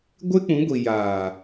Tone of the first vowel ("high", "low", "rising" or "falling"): high